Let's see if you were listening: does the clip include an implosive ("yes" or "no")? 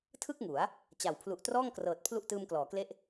no